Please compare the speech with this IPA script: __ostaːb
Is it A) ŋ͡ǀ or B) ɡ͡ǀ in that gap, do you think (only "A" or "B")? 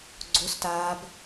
B